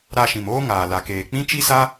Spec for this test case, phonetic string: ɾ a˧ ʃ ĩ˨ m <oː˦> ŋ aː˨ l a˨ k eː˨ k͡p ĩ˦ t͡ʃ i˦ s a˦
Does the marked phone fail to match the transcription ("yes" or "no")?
no